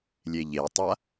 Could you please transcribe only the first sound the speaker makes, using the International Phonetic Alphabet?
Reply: lʲ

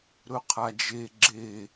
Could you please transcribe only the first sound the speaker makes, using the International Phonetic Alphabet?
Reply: ɾ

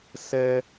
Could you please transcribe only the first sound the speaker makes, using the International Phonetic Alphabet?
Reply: s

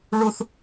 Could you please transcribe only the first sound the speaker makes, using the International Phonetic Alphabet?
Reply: ɭ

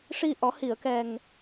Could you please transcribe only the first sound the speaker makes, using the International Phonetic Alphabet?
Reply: ʂ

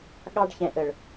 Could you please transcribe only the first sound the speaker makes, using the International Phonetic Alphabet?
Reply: ɠ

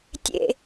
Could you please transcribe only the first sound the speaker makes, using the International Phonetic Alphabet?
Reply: tʲ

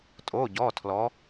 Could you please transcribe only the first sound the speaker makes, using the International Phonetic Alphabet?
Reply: tʼ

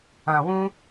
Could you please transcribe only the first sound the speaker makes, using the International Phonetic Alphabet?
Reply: ã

